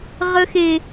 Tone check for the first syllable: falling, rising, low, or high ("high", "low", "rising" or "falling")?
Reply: high